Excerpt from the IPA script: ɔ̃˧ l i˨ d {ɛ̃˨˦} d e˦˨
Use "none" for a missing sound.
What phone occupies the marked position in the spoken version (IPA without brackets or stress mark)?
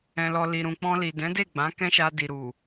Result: ɛ̃˨˦